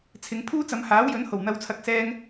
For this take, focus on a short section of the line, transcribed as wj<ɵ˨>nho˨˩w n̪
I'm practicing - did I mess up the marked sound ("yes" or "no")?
yes